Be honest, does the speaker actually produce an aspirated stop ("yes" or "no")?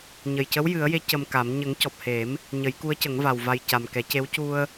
no